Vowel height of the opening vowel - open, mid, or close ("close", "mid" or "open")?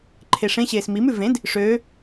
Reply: mid